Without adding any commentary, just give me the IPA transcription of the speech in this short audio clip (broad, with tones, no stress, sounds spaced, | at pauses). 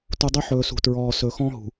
t u˨ dˤ ø˦ ħ ɵː˨ s ṳ˨ t ɹ ɔː˨ s ɵ˨ x ɔ̃˦ ɦ ṳ˨